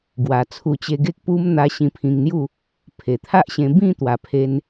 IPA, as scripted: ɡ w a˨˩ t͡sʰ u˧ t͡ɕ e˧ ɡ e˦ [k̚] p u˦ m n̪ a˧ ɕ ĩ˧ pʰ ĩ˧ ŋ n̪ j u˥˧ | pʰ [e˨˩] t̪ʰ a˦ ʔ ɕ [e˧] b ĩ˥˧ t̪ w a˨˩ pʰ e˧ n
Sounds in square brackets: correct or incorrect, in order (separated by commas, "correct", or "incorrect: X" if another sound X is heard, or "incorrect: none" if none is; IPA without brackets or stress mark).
correct, correct, incorrect: ẽ˧